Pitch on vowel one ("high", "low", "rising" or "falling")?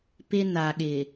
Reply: high